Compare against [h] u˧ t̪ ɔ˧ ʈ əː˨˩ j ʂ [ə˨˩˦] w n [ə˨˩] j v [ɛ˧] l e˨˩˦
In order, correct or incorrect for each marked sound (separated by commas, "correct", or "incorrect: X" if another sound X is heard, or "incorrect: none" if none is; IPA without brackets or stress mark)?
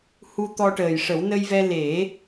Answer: correct, correct, incorrect: ə˧, correct